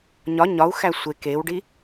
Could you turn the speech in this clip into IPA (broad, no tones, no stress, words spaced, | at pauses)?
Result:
ɲɒ ɲɒu̯xæ sʷe kewɖi